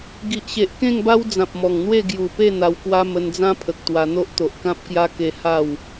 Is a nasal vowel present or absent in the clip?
present